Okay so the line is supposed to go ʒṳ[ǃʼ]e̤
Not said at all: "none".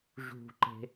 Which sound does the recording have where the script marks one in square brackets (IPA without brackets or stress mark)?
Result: ǃ